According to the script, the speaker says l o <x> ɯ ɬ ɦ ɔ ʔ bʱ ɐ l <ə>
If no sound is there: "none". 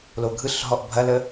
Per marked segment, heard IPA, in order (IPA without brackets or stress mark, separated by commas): ɡʱ, ə